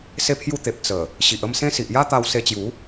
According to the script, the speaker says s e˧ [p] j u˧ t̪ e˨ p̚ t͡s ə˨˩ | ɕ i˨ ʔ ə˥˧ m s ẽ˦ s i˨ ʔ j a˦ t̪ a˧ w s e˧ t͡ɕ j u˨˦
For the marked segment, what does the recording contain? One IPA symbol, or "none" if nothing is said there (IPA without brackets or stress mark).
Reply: pʰ